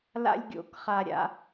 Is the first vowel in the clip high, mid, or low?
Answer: low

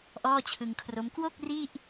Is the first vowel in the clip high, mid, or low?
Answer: mid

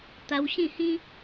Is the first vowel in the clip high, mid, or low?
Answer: low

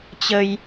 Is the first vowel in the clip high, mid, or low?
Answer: mid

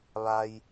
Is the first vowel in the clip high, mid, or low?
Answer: low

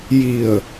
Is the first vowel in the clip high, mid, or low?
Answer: high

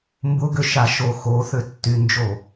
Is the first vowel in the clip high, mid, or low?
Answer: high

